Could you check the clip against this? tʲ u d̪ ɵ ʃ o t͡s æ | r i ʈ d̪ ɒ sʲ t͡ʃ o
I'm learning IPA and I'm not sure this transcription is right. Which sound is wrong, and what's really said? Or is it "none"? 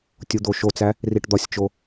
ɵ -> o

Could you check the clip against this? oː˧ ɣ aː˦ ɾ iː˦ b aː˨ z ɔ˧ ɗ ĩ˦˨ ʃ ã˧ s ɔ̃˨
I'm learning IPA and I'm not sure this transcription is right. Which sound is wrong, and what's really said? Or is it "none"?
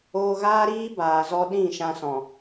none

